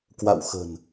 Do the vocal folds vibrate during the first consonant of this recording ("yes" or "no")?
no